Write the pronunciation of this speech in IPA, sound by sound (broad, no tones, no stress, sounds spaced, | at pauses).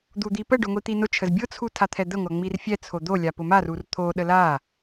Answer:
d̪ u d̪ i p ə ɖ ʊ ŋʷ i t̪ i n ʊ t͡ʃʰ ə z bʲ ʊ t͡sʰ u tʰ a t̪ʰ ɛ d̪ ə ŋʷ a ŋ͡m i r fʲ ɛ t͡sʰ o d̪ o lʲ a p ʊ m a r u r t̪ʰ o ɗ ə l a